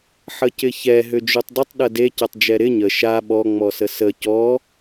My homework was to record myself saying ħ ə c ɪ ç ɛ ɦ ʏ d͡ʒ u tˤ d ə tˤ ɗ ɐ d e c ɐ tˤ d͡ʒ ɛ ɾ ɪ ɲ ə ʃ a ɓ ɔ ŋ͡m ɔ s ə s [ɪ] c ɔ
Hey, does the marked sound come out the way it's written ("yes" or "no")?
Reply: no